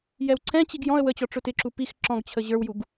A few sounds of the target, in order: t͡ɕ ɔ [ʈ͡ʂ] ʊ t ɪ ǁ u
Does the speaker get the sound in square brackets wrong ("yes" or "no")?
no